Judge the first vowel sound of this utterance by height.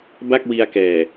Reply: low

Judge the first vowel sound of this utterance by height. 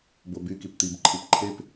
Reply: mid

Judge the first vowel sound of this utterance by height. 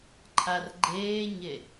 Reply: low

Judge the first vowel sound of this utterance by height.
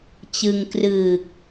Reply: high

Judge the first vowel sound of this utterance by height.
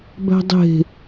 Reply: low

